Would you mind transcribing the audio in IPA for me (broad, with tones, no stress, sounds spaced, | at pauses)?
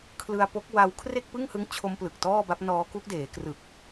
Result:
kʰ l ɯ˧ a̯ p o˦˥ k̚ w a˧ w kʰ r e˥˩ k̚ p ɯ˥˩ ŋ h ɯ˦˥ ŋ t͡ɕʰ o˦˥ m p l ɯ˨˩ k̚ t ɔː˥˩ b a˦˥ p̚ n ɔː˦˥ k u˦˥ k̚ d eː˩˦ k r ɯ˨˩ k̚